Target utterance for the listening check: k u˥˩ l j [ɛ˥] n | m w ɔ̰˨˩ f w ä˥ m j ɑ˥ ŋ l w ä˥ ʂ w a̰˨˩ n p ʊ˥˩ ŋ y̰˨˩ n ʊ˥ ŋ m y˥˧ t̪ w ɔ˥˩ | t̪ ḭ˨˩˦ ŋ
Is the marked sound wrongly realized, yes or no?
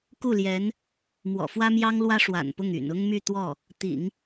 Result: yes